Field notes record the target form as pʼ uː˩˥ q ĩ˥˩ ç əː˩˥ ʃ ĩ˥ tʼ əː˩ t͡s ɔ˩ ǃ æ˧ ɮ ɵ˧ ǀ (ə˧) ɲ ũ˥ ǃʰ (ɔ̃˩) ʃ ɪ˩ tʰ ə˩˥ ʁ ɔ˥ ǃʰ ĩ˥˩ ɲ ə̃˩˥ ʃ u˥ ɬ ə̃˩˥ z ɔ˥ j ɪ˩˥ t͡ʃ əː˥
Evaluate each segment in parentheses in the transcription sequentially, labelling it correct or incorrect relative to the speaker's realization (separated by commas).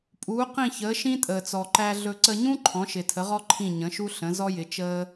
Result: correct, incorrect